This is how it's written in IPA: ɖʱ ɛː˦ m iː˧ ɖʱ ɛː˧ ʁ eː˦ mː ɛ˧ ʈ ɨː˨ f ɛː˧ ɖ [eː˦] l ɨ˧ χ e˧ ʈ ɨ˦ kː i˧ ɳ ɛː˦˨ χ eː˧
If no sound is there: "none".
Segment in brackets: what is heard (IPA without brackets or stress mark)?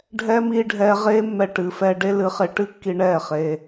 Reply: e˦